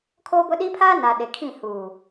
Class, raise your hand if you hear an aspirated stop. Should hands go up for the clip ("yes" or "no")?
yes